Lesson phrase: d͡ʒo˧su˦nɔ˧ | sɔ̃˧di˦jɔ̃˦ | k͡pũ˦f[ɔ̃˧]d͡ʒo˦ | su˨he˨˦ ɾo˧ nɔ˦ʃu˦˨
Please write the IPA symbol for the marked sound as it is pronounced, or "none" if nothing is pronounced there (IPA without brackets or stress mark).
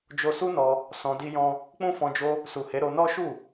ɔ̃˧